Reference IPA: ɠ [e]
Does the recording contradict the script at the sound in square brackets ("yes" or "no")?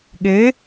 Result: no